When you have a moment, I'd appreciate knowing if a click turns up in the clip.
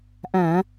no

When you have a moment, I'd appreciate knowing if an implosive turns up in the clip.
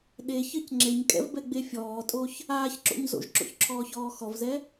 yes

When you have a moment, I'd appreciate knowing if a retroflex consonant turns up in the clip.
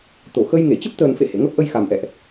no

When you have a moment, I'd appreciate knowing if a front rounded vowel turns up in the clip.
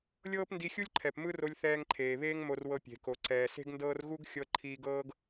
no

